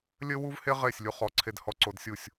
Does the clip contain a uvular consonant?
yes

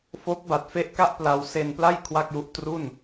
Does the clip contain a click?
no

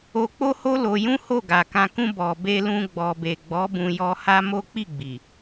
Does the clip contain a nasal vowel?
yes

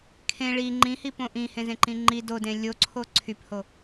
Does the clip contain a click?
yes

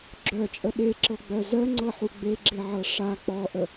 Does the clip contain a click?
yes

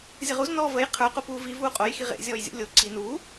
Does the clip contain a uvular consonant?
yes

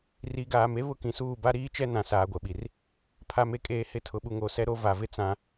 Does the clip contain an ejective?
yes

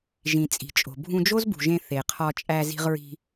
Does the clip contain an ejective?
yes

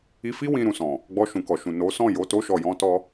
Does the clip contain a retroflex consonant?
no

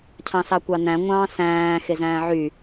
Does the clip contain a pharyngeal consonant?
yes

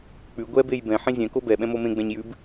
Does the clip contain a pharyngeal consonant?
yes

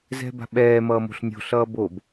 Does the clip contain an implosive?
yes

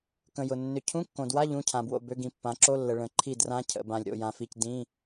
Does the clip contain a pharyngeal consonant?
no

